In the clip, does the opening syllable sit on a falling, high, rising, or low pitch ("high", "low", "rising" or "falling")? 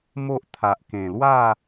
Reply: high